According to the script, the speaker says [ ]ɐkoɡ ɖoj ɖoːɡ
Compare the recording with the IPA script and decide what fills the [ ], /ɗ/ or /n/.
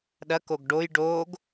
ɗ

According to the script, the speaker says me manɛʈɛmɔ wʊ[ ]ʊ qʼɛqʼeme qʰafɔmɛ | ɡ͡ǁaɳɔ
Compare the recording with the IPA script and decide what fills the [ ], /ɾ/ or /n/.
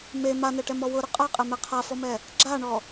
ɾ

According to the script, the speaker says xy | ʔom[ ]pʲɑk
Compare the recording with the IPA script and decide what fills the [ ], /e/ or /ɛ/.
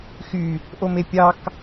e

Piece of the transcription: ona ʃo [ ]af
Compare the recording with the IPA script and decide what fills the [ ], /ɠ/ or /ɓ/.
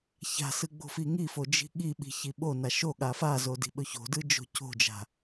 ɠ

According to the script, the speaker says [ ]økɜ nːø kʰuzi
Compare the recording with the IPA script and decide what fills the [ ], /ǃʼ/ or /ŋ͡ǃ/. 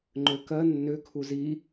ŋ͡ǃ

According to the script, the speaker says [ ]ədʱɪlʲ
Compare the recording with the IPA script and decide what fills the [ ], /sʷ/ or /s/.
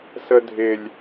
s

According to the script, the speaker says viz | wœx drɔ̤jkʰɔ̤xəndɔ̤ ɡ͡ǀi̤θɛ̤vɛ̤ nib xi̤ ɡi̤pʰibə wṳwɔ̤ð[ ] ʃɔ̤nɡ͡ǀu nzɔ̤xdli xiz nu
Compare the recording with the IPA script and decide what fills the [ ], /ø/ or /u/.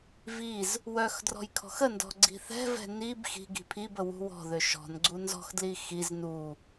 ø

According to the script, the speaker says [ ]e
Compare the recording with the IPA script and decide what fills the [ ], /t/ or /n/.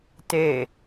t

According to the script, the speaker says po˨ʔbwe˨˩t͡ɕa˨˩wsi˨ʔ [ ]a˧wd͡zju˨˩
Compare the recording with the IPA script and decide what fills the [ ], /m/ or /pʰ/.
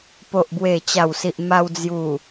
m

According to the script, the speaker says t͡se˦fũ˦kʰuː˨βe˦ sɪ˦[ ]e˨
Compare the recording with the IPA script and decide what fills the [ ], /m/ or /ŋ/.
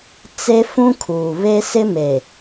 m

